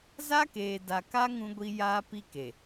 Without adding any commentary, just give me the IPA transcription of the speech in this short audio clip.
za˦keː˨da˨ka˦ ŋũ˦ɡʷi˦ jaː˦pi˦ke˨

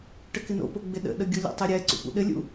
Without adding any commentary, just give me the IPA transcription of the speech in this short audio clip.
ʈəkɪno̰po ɡ͡bɪɗə̰ɗə ɡʲolʲə̰tˤe ɾʲɛ ǀṵpṵɗɘlʲṵ

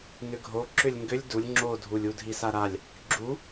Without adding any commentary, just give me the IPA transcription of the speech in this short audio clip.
nʏɡʱo ǁʏlʲŋɡʏlʲ dulʲ ŋ͡ǁodʱulʲ udʱisaɾalʲ | ɡ͡ǁu

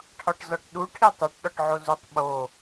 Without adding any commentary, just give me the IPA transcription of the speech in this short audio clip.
ʈʰɒʈzɒʈɗu ʈʰitˤoʈ ɗɒʈʕozutˤ ɓo

